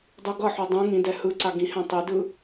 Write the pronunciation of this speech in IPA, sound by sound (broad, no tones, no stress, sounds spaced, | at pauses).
dˤ u ɡ ʌ ħ o dˤ ũ ŋ ĩ d ɛ h ɯ ǀ a ɡ ĩ h ɛ̃ tˤ e d ɯ